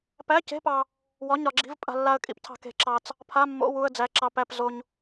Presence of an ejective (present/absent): present